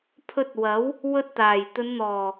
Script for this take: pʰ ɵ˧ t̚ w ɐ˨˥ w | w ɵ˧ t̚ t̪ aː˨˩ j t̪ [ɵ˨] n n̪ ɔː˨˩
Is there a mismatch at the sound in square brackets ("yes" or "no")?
yes